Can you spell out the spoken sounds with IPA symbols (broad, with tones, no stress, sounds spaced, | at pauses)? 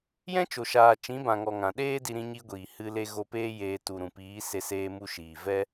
j ɛ̃˦ t͡ʃ o˨ ʃ aː˨ t͡ʃ ĩ˨˦ b ã˨ ŋ ɔ˨ ŋ ã˨ ɗ eː˦ d i˧ ɾ ĩ˧ ɲ i˧ ɡʷ iː˨ h ɨ˧ l e˧ ɣ o˧ p eː˦ j eː˧ t u˨ ɾ ũ˨ p iː˨˦ s e˧ s eː˧ m u˧ ʃ iː˨ v ɛ˦